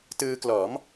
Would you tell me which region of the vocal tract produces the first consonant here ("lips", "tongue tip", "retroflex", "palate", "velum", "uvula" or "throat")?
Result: tongue tip